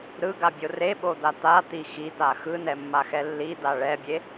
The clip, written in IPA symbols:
ɾɯɡabʲo reɓod̪a t̪at̪i xit̪a xɯnɛmːaxɛ lːid̪a ɭɛbʲe

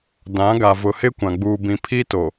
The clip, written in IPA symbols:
dã˨˦ɡa˨ vʊ˨hɪ˦kʷã˨ ɡ͡buː˨bĩ˨ pʰi˦ to˨

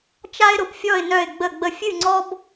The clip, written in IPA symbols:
t͡ʃa˥ɪ̯ɾʊ˧pfʲɔ˥˧ɪ̯ nœ˥˧ɪ̯ɡ͡bə˥˧ɡ͡bə˥ fʲɨ˥˧ŋ͡ǀɔ˥b

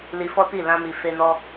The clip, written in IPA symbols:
li˧fɔ˦ti˦˨ lã˧mi˨ fe˧nɔ˧

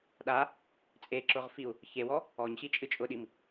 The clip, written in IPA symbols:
ɗa | t͡sʼeǁʊʁfiu̯ | çewɔ | ɔɲɕit͡ʃʼɨ t͡ʃʼʊɗim

